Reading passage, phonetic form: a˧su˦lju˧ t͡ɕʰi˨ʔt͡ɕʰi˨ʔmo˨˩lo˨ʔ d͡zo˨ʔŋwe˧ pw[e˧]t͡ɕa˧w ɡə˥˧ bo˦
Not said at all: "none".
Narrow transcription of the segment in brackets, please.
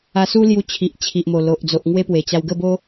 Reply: e˨˩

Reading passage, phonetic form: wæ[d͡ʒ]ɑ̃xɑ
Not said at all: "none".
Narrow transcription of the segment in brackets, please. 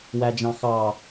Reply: d͡ʒ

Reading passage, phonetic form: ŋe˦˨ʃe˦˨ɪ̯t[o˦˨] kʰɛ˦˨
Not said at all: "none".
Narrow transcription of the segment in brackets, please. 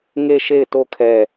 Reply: o˦˨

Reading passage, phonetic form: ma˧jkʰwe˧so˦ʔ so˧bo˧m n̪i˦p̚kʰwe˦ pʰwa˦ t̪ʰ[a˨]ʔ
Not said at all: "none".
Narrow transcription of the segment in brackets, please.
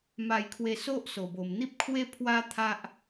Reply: a˦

